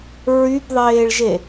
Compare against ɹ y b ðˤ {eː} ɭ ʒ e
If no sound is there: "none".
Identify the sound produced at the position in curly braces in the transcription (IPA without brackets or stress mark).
eː